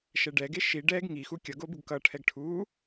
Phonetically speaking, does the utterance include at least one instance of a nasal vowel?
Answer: no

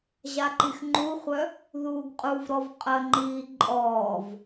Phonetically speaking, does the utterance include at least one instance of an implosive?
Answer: no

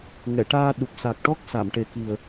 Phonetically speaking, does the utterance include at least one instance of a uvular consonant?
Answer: no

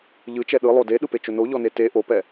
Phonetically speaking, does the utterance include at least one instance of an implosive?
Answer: yes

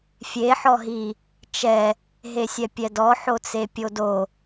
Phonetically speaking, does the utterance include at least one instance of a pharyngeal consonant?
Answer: yes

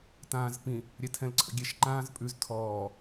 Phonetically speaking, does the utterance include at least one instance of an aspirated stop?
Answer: yes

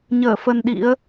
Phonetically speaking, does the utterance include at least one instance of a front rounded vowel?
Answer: no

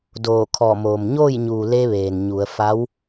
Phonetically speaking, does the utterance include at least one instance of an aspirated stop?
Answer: yes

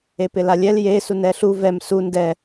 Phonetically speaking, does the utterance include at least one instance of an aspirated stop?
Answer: no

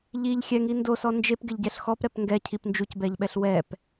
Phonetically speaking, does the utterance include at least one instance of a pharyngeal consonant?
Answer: no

